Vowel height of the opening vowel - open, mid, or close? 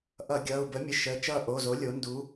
mid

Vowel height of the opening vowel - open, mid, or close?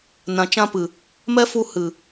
open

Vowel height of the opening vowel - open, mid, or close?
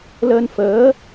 mid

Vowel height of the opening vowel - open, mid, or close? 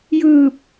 close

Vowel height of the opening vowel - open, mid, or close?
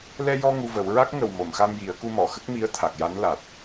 mid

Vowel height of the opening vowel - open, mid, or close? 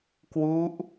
close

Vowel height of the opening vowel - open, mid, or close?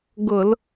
close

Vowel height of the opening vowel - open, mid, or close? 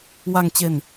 open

